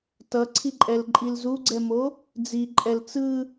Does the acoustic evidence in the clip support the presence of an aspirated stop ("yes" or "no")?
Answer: yes